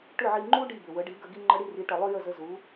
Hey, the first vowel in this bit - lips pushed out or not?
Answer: yes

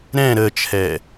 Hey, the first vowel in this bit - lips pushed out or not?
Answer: no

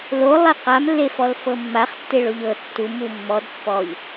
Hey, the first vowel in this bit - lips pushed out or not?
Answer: yes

